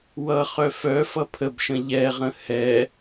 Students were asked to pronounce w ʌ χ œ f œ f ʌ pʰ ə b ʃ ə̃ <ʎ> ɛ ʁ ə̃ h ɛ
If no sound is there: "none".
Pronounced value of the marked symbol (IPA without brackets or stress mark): ʎ